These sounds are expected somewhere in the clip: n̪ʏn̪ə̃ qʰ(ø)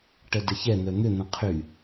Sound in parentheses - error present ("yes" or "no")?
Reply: yes